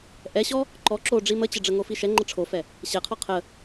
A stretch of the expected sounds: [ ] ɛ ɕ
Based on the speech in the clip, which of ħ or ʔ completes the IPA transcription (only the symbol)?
ʔ